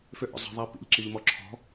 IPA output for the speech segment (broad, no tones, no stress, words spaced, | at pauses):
fʏʔɔ̰ zˤə̤ðˤæ pḭʎǁiʎmɔ ǁʰɔ̤